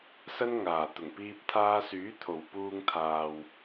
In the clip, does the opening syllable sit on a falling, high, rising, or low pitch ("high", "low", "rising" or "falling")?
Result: high